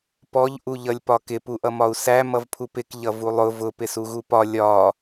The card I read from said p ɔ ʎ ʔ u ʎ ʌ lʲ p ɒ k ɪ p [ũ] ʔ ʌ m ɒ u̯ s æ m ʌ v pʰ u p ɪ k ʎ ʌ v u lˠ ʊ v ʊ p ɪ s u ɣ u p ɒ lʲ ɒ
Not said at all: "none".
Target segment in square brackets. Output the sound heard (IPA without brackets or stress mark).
u